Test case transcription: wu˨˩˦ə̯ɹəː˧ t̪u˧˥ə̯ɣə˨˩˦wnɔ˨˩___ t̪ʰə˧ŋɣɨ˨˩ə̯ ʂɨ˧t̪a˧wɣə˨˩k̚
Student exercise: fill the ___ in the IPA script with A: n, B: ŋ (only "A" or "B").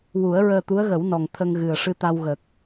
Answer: B